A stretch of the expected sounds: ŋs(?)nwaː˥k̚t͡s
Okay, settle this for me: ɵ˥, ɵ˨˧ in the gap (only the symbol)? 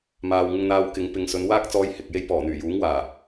ɵ˨˧